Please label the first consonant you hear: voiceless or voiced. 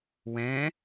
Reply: voiced